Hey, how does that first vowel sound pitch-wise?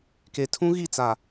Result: low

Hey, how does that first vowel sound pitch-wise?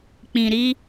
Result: low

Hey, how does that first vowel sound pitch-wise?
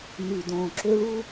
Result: low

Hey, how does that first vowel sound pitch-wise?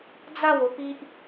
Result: falling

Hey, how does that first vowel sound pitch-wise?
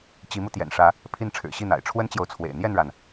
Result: rising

